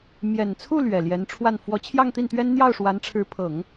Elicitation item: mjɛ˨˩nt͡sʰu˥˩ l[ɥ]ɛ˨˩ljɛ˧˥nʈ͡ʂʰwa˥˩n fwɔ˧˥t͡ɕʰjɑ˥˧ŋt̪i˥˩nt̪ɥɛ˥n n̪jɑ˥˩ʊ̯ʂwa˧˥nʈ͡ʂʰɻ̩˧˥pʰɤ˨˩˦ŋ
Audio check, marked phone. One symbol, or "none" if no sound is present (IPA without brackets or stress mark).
ɥ